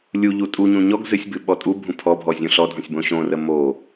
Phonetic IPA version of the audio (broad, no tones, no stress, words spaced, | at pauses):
lʲuʎu tʼuɲũ ɲɔɡ zɨsʲbɨ ɓɔtʼubʱũ pʰɔbʱɔ zʲũɬɔdʱɔ̃sʲ bõɕõrə mo